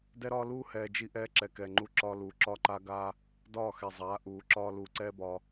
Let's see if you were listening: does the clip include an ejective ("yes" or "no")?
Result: no